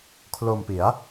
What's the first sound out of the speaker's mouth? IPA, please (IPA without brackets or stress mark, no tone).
kʰ